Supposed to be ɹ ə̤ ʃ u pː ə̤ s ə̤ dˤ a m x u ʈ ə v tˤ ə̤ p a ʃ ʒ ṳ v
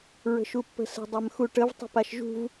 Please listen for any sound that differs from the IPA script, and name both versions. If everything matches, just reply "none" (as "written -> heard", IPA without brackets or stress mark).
none